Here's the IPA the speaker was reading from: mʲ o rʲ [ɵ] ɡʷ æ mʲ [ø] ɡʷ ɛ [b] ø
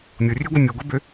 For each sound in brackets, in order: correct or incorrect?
incorrect: ø, incorrect: u, correct

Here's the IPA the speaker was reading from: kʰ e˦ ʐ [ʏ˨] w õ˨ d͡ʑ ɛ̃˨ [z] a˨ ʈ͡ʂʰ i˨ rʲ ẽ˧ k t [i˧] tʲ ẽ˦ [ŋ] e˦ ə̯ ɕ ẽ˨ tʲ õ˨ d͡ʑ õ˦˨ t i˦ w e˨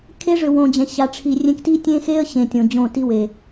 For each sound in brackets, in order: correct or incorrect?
correct, incorrect: ɕ, incorrect: i˦, incorrect: x

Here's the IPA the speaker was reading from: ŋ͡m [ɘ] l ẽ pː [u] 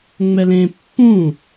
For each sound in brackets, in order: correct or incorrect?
incorrect: ɛ, incorrect: ũ

